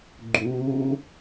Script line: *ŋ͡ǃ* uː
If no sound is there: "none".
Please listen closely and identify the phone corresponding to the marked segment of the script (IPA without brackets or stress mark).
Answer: ɡ͡ǃ